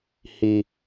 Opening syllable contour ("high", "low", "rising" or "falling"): low